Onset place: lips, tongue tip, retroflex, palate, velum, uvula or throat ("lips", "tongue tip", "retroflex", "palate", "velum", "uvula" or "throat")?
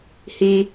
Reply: throat